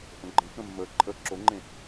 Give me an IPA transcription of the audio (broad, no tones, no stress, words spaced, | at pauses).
ʔə̃ɡ͡ǃə̃kə̃ mːə ǃʼə ǁoŋ͡ǃẽ